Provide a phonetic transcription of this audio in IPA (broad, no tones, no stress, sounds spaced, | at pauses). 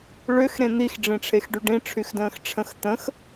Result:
ɭ ʏ x ɾ ẽ n̪ i x ɖ͡ʐ ĩ ʈ͡ʂʰ e x ɖ y ɖ ĩ ʈ͡ʂʰ y x d ə̃ː x ʈ͡ʂʰ ə̃ x t̪ ə̃ x